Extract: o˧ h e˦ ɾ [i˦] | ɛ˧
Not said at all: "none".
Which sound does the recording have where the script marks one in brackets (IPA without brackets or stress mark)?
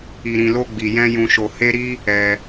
i˦